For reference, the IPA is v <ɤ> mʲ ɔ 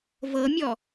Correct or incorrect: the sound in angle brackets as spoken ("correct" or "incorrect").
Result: correct